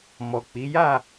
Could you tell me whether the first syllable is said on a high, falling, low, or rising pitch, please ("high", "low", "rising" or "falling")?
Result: low